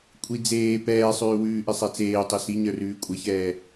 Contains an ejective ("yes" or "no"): yes